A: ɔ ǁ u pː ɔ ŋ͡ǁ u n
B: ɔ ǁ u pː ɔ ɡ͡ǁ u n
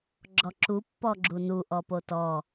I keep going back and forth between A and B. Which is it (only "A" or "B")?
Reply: B